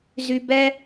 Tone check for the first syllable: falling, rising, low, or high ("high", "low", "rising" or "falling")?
high